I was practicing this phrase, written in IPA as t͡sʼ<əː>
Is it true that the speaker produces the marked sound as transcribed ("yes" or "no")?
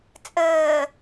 yes